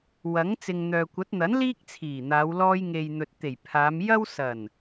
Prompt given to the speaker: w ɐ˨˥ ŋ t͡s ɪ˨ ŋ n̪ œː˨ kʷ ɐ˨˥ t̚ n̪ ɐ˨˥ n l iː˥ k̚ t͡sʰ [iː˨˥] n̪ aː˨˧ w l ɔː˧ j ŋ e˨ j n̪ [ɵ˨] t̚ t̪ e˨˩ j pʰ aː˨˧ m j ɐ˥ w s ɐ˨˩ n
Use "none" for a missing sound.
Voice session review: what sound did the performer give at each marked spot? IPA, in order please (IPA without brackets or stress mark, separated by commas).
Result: iː˨˩, ɵ˨